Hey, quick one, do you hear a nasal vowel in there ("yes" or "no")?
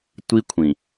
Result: yes